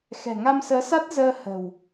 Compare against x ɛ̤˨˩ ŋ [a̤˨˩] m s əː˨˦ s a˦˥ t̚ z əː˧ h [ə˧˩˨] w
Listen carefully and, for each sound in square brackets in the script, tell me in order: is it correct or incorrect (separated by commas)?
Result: incorrect, incorrect